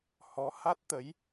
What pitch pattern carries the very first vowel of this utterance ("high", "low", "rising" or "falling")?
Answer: rising